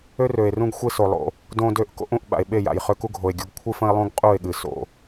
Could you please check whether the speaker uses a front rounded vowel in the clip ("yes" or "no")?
yes